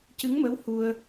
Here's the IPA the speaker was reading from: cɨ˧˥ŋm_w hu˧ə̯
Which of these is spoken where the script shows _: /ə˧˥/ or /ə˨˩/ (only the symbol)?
ə˧˥